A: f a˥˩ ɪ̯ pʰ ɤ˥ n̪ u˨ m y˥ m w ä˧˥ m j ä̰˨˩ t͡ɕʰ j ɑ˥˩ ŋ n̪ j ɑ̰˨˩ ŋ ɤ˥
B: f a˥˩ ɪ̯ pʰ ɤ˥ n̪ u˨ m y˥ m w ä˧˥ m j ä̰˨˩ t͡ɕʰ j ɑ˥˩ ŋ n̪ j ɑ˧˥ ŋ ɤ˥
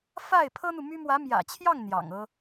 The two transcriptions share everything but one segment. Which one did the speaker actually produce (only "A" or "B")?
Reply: A